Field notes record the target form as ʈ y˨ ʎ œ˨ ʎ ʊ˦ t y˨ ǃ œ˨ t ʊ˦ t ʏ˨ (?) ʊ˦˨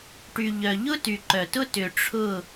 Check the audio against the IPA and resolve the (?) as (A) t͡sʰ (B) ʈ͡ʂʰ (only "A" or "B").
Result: B